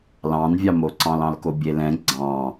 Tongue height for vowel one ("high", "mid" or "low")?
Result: low